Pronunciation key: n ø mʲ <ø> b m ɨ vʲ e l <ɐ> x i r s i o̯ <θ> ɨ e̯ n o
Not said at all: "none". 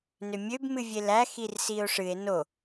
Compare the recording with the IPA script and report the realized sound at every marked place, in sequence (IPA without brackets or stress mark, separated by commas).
ø, æ, ʂ